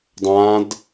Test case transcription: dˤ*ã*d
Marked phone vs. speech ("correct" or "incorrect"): correct